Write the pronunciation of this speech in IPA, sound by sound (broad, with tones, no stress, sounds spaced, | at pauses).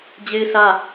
d͡ʑ e˦ ɪ̯ s ä˦